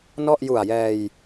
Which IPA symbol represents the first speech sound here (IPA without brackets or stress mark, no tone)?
n